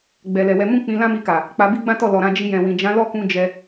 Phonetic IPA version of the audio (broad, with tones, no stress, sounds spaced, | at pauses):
ɡ͡b ɛ˨ l ɛ˨ w ɛ˧ m ũ˦ k͡p ĩ˧ l ã˦ m i˧ k a˨ | k͡p a˧ b i˦ ɡ͡b ã˦ t ɔ˦˨ l ɔ˨ ɾ ã˧ d͡ʒ i˧ j ɛ̃˨ w ĩ˨ d͡ʒ ã˨˦ l ɔ˦˨ k ũ˧ d͡ʒ ɛ˧